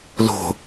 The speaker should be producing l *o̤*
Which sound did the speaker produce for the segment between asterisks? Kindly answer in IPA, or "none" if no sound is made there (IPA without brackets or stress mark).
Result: o̤